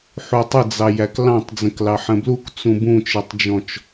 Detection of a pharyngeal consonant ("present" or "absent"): present